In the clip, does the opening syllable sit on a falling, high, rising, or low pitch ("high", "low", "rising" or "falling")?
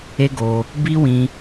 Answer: high